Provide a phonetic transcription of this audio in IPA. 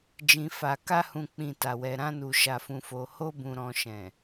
d͡ʒ ĩ˨ f a˨ k a˧ h ũ˨ k͡p ĩ˨ t a˨ w ɛ˨ ɾ ã˧ n u˨ ʃ a˨ f ũ˨ f o˨ h o˧ b ũ˨ ɾ ɔ̃˨ ʃ ɛ̃˨

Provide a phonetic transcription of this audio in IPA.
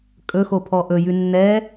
kʼ ɵ x o pʰ ɔ ʔ ɵ j ʉ nː ɛ

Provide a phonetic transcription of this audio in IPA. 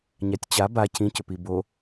ɲ a tʲ t͡ɕ a b a cʰ ĩ c ʏ p i b o

